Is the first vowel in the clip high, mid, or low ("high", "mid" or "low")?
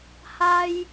low